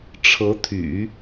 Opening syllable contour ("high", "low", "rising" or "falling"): rising